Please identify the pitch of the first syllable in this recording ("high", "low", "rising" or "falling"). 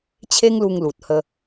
high